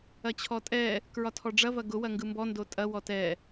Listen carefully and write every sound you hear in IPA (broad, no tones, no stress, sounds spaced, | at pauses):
ɐ t͡ɕʰ ɔ tʼ ɛ | k ɹ ɒ tʰ ɔ ɖ͡ʐ ɐ v ɐ ɡ ʊ w ɐ ŋ ɡ ɯ m b ɔ n d o tʼ ɐ w ɔ t ɛ